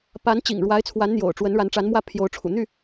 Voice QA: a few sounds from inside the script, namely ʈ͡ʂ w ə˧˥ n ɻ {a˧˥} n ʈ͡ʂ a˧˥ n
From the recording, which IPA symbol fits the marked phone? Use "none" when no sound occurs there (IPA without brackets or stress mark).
a˧˥